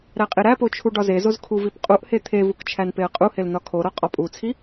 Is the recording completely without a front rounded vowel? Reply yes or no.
yes